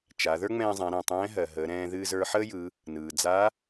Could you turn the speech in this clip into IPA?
t͡ʃa˩˧ ðə˞˥ŋ͡mɛ̃ː˧zˤɛ̃˩˧ ɾɛ̃˩tˤɛ̃ː˧˥ɦɜ˩ɦəː˩˧ ɾɛ̃ː˧ ðɨː˧zə˞˧ħəː˥jɯ˩˧ | nɯː˩d͡za˧˥

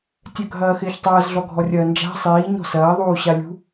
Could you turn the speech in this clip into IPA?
tʲœɡʱɐːxɪːçtˤɐːz ɮɔɡʱɔrʲɐːnd͡ʒa̤ sˤiː ɲɔ̤sɐː ðˤuːɕalʲṳ

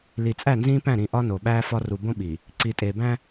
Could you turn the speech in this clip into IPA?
li˨t͡sʼæ˦˨nzĩː˦pæ̃˦˨ ɾĩ˨ʔɒ˦ no˨ɓæː˦fɒ˦ ru˨bõ˦ ɓi˨ | ǀi˨tʼeː˨bæ̃˦

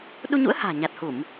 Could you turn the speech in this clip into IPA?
ɗu˧ɲṵ˧˥ə̯ ha̤ː˨˩ ɲa˨˩t̚hu˧˩˨m

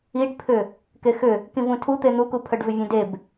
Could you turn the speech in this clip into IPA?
iɖpʰʏ | kexʏ | kĩvũtʰu t̪en̪ukupʰœɖ vʏvʲœ̃deb

